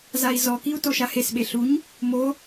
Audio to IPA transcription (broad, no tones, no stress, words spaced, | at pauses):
zai̯zɔkiu̯ toʃahesɓe ɬuɲ | mo